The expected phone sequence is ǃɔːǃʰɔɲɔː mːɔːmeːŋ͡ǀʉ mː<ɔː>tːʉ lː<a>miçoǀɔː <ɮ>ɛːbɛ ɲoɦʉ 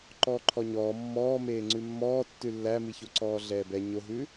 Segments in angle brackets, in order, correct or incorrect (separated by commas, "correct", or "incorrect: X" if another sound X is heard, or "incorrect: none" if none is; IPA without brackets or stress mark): correct, incorrect: æ, correct